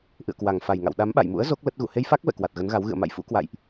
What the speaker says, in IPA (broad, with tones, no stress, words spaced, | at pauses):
ʔɨ̰˧˨ə̯kwa˨˩ŋfa˨˩jŋa̰˧˨w ɗa˨˦mɓa̰˧˨jmṵ˧˥ə̯ zo˦˥k̚ lə˦˥t̚ɣṵ˧˨ he˧jfa˦˥k̚vɛ̰˧˨ kwa˨˩t̚ɣə˨˦nɣa˨˦w ɣɨ̰˧˨ə̯ma̰˧˨jfṵ˧˥kwa̰˧˨jʔ